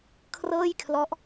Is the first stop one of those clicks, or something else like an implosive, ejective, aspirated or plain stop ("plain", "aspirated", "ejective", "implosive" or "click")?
aspirated